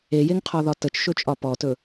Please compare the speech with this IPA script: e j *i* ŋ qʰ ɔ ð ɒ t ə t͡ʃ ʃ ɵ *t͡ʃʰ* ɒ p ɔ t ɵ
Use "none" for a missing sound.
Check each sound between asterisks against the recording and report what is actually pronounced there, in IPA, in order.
e, t͡ʃʼ

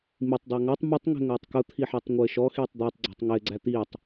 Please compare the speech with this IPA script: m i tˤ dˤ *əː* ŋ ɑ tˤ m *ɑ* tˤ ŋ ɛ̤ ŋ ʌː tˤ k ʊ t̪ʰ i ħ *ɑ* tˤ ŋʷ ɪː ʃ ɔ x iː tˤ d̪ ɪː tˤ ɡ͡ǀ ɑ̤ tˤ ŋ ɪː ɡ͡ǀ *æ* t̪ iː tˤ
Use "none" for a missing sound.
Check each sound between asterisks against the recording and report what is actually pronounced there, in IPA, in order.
əː, ʌ, ɑ, æ

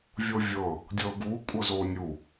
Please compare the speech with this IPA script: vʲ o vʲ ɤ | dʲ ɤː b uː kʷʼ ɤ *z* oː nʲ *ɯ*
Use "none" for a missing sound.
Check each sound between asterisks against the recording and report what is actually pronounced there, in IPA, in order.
z, u

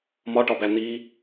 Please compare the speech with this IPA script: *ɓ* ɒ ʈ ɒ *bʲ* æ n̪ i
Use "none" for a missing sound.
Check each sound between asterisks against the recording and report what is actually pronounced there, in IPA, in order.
m, b

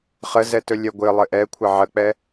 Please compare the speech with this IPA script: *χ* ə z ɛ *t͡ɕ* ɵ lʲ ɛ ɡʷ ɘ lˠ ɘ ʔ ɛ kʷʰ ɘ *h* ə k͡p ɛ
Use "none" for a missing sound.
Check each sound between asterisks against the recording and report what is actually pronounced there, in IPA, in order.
χ, t, ʕ

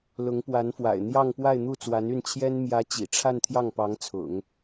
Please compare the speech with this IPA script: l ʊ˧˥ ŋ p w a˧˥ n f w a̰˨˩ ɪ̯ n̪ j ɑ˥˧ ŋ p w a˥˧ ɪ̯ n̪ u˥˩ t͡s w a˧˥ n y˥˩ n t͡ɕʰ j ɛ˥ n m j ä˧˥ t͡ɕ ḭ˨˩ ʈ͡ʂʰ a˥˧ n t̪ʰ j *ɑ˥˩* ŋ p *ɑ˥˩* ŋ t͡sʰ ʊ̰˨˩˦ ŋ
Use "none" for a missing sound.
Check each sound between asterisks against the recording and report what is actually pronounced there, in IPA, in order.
ɑ˥˩, ɑ˧˥

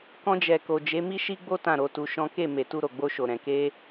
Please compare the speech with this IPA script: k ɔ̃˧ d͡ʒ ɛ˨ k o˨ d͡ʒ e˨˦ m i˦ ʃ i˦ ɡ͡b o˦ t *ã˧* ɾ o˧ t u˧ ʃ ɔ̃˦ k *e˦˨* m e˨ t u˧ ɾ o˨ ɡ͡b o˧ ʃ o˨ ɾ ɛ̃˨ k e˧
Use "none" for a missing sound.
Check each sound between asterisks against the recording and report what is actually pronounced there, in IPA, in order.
ã˦˨, e˦˨

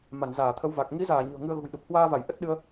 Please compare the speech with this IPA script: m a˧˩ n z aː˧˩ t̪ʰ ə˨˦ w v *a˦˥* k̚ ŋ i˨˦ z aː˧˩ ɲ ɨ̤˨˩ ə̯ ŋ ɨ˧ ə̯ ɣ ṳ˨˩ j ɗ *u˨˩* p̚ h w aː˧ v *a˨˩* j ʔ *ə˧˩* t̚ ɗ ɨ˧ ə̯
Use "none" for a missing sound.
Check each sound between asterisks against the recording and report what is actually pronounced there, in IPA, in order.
a˨˩, u˨˩, a˧˩, ə˦˥

